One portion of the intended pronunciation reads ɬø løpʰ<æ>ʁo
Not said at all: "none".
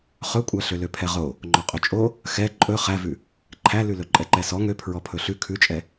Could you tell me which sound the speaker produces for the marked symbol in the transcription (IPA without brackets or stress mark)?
ɛ